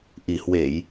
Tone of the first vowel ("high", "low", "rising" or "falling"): low